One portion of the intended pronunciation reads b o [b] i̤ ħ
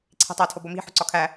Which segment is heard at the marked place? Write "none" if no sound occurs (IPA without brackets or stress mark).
m